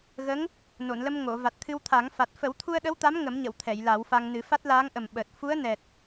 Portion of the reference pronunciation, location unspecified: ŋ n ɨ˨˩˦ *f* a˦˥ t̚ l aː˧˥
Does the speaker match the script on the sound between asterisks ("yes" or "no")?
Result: yes